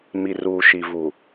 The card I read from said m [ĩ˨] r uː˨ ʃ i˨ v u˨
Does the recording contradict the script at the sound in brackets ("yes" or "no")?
yes